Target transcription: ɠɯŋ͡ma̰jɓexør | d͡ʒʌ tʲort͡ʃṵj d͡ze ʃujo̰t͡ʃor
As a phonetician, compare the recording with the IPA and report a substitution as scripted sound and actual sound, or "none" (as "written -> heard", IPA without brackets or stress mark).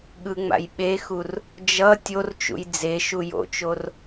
ø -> u